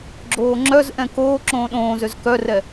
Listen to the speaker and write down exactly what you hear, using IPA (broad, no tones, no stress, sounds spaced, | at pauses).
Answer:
ɡ͡ǁ oː ŋ͡ǁ œ z ʔ ɛ̃ k oː ǁ õː ɗ õː z ø z k œ r ɛ